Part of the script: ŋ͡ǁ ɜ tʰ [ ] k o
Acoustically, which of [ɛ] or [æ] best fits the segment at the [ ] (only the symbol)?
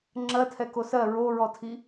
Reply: ɛ